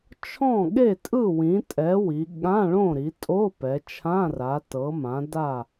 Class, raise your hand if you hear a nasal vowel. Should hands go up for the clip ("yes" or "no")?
yes